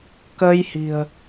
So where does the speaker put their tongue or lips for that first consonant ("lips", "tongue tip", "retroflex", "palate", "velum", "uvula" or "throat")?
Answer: velum